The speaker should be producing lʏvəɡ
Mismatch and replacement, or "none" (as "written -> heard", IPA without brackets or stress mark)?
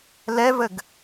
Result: ʏ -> ɛ